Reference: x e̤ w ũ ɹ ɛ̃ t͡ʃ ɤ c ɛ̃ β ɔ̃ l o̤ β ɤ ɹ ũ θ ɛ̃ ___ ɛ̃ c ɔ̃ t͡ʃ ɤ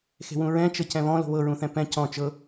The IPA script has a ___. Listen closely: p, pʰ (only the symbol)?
p